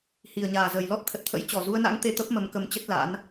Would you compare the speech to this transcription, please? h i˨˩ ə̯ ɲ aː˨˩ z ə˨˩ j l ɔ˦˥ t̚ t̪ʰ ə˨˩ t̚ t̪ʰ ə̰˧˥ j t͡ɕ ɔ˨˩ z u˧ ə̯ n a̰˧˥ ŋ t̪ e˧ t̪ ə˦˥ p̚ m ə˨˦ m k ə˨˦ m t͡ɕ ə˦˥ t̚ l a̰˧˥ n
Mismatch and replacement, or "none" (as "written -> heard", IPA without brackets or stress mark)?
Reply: none